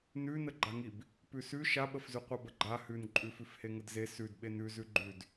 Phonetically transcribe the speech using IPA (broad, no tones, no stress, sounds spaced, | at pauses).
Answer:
n ʉ n ə ɡ͡ǃ a ŋ i b | p ʉ s ʉ ʃ a ɓ ə f z ʉ qʷ a b ə ɡ͡ǃ a h ʉ n ǃʼ ʉ f ʉ f h e ŋ ə d z e s ʉ d ɓ e n ʉ z ʉ ɡ͡ǃ ʉ d